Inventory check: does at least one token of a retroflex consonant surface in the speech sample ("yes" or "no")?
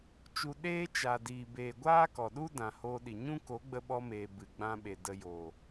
no